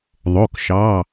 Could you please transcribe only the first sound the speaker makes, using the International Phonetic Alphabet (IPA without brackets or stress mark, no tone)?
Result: ðˤ